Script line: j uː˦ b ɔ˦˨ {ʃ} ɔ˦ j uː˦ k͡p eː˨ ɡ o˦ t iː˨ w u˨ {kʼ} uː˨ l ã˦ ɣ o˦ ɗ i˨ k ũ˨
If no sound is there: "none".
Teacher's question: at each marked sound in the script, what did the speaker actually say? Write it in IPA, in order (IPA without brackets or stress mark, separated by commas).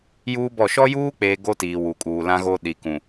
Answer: ʃ, kʼ